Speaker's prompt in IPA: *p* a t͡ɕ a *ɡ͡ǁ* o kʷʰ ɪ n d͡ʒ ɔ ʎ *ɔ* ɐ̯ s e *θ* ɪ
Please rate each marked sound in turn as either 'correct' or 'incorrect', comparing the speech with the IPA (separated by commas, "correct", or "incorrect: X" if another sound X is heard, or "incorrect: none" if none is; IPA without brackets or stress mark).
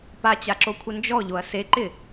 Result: correct, incorrect: ǁ, incorrect: o, incorrect: ǃ